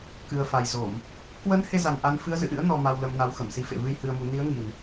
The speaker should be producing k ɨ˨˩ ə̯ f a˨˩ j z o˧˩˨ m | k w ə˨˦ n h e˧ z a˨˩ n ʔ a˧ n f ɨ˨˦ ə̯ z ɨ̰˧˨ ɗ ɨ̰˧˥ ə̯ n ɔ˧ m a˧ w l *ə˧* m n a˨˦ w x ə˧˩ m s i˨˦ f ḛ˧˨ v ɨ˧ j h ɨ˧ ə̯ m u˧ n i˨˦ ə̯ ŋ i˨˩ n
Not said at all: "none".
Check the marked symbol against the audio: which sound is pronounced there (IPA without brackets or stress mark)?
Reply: ə˧